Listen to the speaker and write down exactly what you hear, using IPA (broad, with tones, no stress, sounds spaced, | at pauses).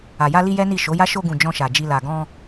a˨ j a˧ l i˧ j ɛ˦ n i˦˨ ʃ o˨˦ j a˦ ʃ o˧ ɡ ũ˨ d͡ʒ ɔ̃˧ ʃ a˨ d͡ʒ i˧ l a˨ ɡ ɔ̃˧